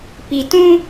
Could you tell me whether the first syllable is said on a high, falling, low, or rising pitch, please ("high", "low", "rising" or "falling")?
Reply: low